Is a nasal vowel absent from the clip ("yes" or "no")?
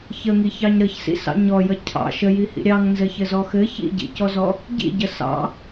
yes